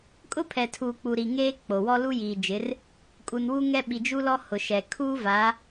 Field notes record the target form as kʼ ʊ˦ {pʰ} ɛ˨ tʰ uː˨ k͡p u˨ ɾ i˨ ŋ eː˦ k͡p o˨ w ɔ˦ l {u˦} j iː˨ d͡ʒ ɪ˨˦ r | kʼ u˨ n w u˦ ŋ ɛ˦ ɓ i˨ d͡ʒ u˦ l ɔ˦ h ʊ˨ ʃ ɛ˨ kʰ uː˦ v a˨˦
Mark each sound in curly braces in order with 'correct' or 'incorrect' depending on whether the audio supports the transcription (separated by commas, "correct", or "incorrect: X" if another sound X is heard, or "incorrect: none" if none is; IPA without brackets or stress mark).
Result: correct, correct